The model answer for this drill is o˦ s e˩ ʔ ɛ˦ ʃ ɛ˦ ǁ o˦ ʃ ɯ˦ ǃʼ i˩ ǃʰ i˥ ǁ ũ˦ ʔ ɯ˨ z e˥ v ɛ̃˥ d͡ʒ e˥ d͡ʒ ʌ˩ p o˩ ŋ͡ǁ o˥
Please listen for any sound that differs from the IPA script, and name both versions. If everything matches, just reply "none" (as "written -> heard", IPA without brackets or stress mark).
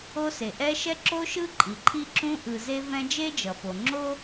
none